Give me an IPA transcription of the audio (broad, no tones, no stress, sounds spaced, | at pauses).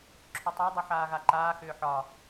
ǁʰ ʏ tˤ a dˤ ʊ ħ aː ɣ a ǃ aː x ʏː ħ ɒ